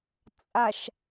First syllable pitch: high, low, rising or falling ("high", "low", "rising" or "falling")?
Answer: low